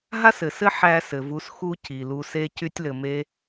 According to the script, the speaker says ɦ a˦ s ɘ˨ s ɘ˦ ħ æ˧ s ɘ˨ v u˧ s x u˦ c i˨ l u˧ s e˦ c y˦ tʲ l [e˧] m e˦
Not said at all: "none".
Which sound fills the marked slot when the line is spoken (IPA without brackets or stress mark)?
ɘ˧